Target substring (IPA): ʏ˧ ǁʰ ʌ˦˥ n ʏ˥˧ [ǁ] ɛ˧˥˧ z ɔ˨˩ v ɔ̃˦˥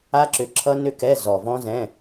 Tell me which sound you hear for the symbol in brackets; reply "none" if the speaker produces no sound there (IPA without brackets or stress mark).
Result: k